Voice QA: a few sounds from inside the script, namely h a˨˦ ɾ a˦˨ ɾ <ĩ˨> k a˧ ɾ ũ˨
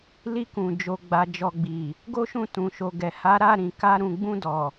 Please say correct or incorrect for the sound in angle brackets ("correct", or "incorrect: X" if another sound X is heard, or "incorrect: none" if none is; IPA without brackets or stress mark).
correct